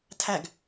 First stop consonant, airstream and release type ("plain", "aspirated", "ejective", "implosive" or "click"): aspirated